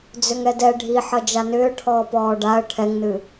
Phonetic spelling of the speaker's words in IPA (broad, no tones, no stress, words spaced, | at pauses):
d͡zʏŋɛdɛ ɖʱiħʌ d͡ʒanʏː ʈʰɔːpɔːɖaə̯ ʈʰɛŋnɨ